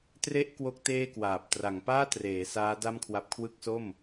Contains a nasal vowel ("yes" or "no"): no